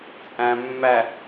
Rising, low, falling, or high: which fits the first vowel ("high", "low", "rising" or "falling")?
low